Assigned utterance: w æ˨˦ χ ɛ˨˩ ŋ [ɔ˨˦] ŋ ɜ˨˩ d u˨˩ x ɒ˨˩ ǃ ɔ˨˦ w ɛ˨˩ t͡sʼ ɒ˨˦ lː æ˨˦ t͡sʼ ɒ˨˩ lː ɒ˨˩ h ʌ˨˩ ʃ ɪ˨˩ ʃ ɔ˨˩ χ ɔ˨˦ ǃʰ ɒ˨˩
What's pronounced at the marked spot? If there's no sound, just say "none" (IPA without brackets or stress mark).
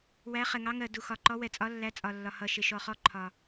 ɑ˨˦